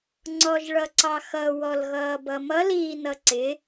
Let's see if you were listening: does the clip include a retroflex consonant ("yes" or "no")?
yes